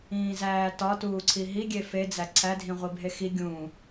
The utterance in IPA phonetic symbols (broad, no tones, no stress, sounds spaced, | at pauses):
ĩː z æː t ɒ t uː ǀʰ i ɦ i ɡʲ e f e d͡z æ ǀʰ æ dʱ ĩ ʁʷ i bʱ e x i ɡʲ ũ